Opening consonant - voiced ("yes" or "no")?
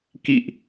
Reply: no